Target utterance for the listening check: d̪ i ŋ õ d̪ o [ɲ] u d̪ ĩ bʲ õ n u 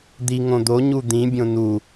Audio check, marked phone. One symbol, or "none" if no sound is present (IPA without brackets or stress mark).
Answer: ɲ